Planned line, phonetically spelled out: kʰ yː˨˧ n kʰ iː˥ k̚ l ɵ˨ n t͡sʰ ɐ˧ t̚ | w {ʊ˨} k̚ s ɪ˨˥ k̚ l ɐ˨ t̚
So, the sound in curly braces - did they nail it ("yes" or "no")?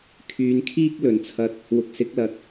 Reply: yes